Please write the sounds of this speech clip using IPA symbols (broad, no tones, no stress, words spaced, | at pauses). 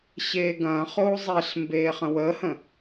ɕeːɡɐ̃ːχoː zˤeɬ mbeːχə̃wəːhə̃